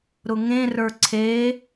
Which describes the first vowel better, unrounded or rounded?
rounded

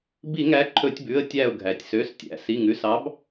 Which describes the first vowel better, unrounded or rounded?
unrounded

